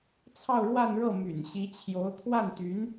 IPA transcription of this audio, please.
t͡sʰ ɑ˥˧ ʊ̯ ɻ w a˥˧ n ɻ ɤ˥˩ m y̰˨˩ n ɕ i˧˥ t͡ɕʰ j o˧˥ ʊ̯ t̪ʰ w a˥˩ n t̪ y˧˥ n

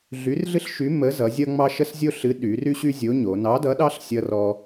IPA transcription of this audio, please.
ɮ y˨˥ r ɮ ɨ˦ ɬ ʃ y˨˥ m ə˨˥ z ʌ˩˧ zʲ ʌ˦ ŋ͡m ɑ˦ ʃ ə˦ s zʲ o˦ ɬ ɨ˨˥ ɗ y˩˧ r y˦ ɕ y˦ zʲ o˨˥ ɲ o˩˧ n ɑ˨˥ d ʌ˨˥ ɗ ɑ˦ ɬ sʲ ʌ˦ r ɔ˦

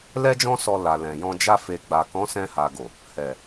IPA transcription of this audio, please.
l ɛ˦ d͡ʒ ɔ̃˦ s ɔ˧ l a˨ l ɛ̃˨ j ɔ̃˧ d͡ʒ a˧ f e˨ ɡ͡b a˨ k ɔ̃˨˦ s ɛ̃˧ h a˨ ɡ o˨ | h ɛ˨

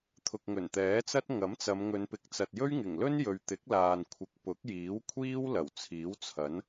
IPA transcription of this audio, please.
t̪ʰ ʊ˨ k̚ ŋ ɵ˨˩ n t̪ ɛː˨˥ t͡s ɐ˥ t̚ ŋ ɐ˨˥ m t͡s ɐ˨˧ m ŋ ɵ˨˧ n p ɪ˨˥ k̚ t͡s ɐ˨ t̚ j ɵ˥ ɥ ŋ ɪ˨˩ ŋ l ɵ˥ n j ɵ˨ ɥ t̪ ɪ˨˥ k̚ l aː˨ n kʷʰ ɪ˨˥ k̚ p ʊ˨˥ k̚ j iː˨˥ w kʷʰ iː˥ w l ɐ˨˩ w t͡sʰ iː˨˥ w t͡sʰ ɐ˨˥ n

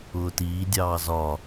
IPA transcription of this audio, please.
ʊː t iː dʲ ɑː z ɒ

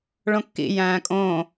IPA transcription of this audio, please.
ɭ õ kː ḭ j æ̃ː kʼ õ

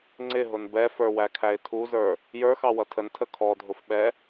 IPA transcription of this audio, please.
ŋ͡ǀ ɪ ɦ ʊ n b ɛ f ə˞ w æ kʰ æ ɪ̯ tʰ u z ə˞ | j ə˞ x ɑ w ʌ tʰ ə n tʰ ə kʰ ɔ dʱ ʊ f ɓ ɛ

